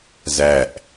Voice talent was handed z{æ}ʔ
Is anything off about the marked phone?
no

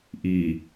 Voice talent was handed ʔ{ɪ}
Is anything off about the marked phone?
yes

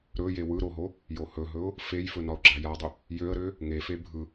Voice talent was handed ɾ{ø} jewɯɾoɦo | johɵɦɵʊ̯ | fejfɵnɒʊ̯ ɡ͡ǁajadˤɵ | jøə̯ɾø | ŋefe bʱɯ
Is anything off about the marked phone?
yes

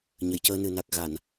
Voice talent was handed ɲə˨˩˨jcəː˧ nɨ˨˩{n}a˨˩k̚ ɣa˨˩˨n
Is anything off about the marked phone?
no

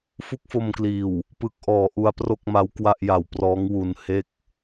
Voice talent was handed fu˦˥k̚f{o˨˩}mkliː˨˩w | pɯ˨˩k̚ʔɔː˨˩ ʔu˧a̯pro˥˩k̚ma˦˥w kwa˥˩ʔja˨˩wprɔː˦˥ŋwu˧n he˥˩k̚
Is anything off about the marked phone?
yes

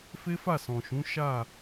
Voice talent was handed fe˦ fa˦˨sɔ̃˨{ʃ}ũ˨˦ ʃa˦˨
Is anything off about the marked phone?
no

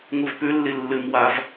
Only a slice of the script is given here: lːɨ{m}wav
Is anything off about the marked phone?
no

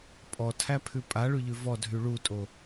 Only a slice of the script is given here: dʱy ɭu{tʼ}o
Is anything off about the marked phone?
no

